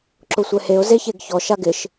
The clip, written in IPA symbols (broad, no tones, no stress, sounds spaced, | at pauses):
ǁ ʊ sʷ ɛ h e ʊ̯ z e ç e ɡ ç ɔ ʃ a ɡ ɪ ʃ